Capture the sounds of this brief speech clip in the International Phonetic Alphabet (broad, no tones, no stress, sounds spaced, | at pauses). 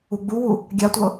u ɡ͡b u w u | ɡʲ a tʷ ɤ